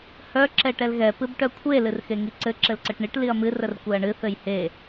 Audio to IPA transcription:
h œ ǁ ɛ ʈ ɛ l ɣ ɛ p ɨ b ʈ œ kʷʰ e l ɨ r x e ŋ i ǀ ɘ ǁ ɘ l ǀ ɘ ʈ ɳ i ʈ l i ɐ̯ m ɨ r ə r kʷ ɛ ɐ̯ ɳ ɨ θ ɘ j h e

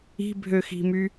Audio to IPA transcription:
i̤ bʱ ø x i̤ m y

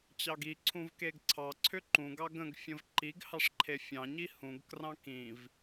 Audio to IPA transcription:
t͡ɕ ɑ ɡ i ǀʰ ũ v k e ɡ ǀʰ ɑ ǀʰ ʏ ǃ ũ ɡ ɑ ɡ ə̃ ɡ fʲ ə̃ v ǃ i ɡ h ɑ ʂ ǃʰ e fʲ ɑ̃ ɲ i h ũ ɡ k r ɑ̃ k ĩ v

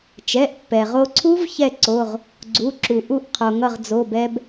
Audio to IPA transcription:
t͡ʃ ɛ˩˧˩ ʔ pː ɛ˩ ʁ o˧ ǀʰ u˦˥ v ç ɛ˥˨ ǀ o˩˧˩ ʁ | ɡ͡ǀ u˩˧˩ ǁ u˩ ʔ u˥˨ ʔ qʰ o˩ ŋ ʌ˥˨ ʁ d͡z o˩˧˩ b ɛ˧ b

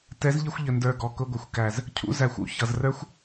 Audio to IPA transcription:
t ɛ˨˦ z ʎ ɪ˧ xʷ ʎ ə˨ n d ə˞˨ ɡ ɔ˨ k ʊ˧ ɡʷ ə˨ xʷ k æ˨ z | cʰ ṵ˧ z æ˨ xʷ ṵ˦ ç ʌ˨ z r ə˞˦ xʷ

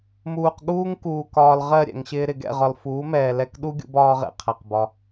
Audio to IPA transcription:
m uː˨ q ɠ uː˦ ŋ k uː˨ k ɒː˨ l ʁ ɜ˦˨ ɾʲ ɛ̰˨ ŋ ɕ ɪː˧ ɾ ɪ˨ ɡ ɛ̰˦˨ ʁ ɒ˨ l f uː˨˦ m ɛː˨ l ɛ˧ k ɗ u˦ ɡʲ ṵ˧ b ɒː˧ ʁ ɛ̰˨ qʰ æ˨ q b ɒ˧

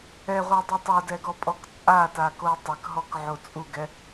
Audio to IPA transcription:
ɛ ʁʷ ə˞ dˤ u tˤ o d ɛ ɡ ɔ pʼ ɔ k t͡sʼ a t a k o tˤ ɘ k ɦ ɔ k ʕ o t͡sʼ u ɡ ɛ

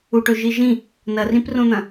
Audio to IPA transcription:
u ʈ ɵ ʒ i ʒ ĩ | n ɐ r ĩ p r õ n̪ ɐ̃

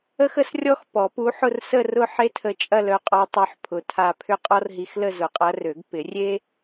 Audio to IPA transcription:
ə˥ x ə˧˥ s rʲ ɔ˥ x p ɔ˨˩˦ p u˧˥ ħ ʊ˥˧ r s ə˥˧ r ʊ˥˧ ħ e˥ tʰ ə˧˥ t͡ʃʼ ɐ˥˧ l œ˧˥ qʼ ɔ˧˥ tˤ œ˧˥ ħ pʰ ʊ˧˥ tʰ a˥˧ pʰ ʏ˥˧ qʼ ɔ˥ r ɦ i˧˥ x l ə˥˧ z ʊ˨˩˦ qʼ ɐ˧˥ r ø˨˩˦ ɡ p ɪ˨˩˦ rʲ e˥

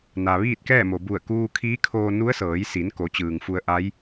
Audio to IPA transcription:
n a˩ ʋ iː˥˨ t̚ k ɛː˥˨ m o˩ b u˧˩ ə̯ k uː˧ kʰ iː˧˥ kʰ oː˧ n u˧˥ ə̯ s ɤː˩˧ j s i˩˧ n k o˩˧ t͡ɕ ɯː˩ ŋ f u˧ ə̯ ʔ a˧˥ j

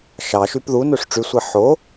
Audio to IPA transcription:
ʃ ɑ ʃ y p ð u n ø ʂ ʈ͡ʂ y sʷ e ħ o

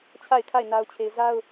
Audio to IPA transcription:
t͡ɕʰ a˦˨ ɪ̯ kʰ a˦˨ ɪ̯ n a˦ ʊ̯ t͡ɕʰ e˦ ɪ̯ z a˦ ʊ̯

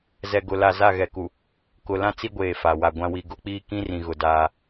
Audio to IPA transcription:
z ɛ˨ ɡ ʊ˨ l a˨ z a˦˨ ɣ ɛ˨ k u˨ | k ʊ˨ l ã˦ t͡s i˦ ɡʷ eː˨ f a˨ w a˨ ɡʷ ã˦ w i˨ ɡ ʊ˦ k͡p iː˦ k ĩ˦ r ĩ˨ ɣ ʊ˨ d aː˦

